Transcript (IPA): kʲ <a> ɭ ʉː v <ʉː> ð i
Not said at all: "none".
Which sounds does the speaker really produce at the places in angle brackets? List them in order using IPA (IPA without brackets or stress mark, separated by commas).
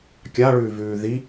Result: a, ʉː